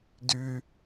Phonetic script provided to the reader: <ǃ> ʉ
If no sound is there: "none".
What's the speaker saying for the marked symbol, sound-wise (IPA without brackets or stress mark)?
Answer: d